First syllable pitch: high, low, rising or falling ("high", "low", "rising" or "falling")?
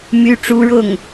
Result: high